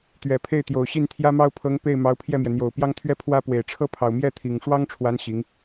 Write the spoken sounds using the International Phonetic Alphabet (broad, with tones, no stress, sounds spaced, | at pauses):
t̪ ɥ ɛ˨˩ pʰ e˥˩ ɪ̯ t̪ j o˨˩ ʊ̯ ɕ i˥˩ n t̪ʰ j ä˥ m ɑ˥ ʊ̯ pʰ ɤ˧˥ ŋ p e˥˩ ɪ̯ m ɑ˧˥ ʊ̯ pʰ j ɛ˥˩ m j ɛ˩ n̪ j o˨˩ ʊ̯ p j ɑ˥ ŋ t̪ʰ ɥ ɛ˥ pʰ w ä˥ p w e˨˩ ɪ̯ ʈ͡ʂʰ ɤ˥ pʰ ɑ˨˩ ʊ̯ m j ɛ˥˩ t̪ʰ i˨˩ ŋ ʂ w ɑ˥ ŋ ʈ͡ʂʰ w a˧˥ n ɕ i˧˥ ŋ